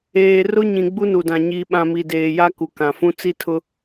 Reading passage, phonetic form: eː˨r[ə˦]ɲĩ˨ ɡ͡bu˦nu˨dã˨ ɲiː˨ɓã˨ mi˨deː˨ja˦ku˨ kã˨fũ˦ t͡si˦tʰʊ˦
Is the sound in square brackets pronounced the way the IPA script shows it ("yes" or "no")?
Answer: no